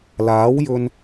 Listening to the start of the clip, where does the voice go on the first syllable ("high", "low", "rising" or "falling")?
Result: rising